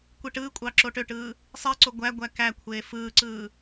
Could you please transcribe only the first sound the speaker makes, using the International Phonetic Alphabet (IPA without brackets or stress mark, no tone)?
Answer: kʷ